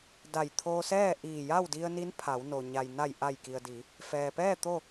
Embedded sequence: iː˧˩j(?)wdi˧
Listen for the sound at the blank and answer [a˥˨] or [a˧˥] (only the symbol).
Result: a˥˨